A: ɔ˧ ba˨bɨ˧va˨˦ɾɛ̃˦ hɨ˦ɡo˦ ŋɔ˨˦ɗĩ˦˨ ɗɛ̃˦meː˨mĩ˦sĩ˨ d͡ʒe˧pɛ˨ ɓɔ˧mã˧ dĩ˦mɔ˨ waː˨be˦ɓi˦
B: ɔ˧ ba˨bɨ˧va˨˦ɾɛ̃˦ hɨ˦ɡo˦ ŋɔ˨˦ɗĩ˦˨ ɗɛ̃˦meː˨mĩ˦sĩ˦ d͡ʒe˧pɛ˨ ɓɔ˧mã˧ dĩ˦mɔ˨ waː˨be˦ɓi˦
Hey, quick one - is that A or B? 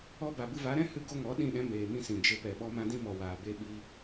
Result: A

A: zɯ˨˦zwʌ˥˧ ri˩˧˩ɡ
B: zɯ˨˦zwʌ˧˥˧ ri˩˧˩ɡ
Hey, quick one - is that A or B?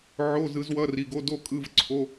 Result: B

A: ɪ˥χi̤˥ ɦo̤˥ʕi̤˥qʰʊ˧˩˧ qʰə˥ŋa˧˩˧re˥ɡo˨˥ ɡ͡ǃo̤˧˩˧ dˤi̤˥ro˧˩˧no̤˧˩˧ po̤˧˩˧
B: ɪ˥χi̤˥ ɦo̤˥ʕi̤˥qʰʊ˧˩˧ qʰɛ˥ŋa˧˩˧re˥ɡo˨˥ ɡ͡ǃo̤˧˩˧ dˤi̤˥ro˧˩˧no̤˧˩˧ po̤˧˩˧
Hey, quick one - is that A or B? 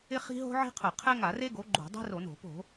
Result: B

